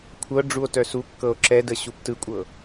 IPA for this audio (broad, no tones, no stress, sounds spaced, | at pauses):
kʷʰ ɤ ɖ͡ʐ u o̯ t œ s u kː ɤ o̯ ǁ ɛ d ə ɕ u p t ɯ kʷʼ ɤ